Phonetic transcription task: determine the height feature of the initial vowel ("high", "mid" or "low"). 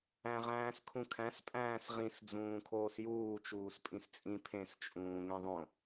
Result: low